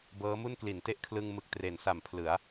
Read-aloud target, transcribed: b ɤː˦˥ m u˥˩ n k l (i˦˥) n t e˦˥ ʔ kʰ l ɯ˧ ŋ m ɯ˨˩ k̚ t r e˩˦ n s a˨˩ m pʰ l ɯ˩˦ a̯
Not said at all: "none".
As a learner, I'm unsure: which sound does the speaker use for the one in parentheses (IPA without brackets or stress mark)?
i˩˦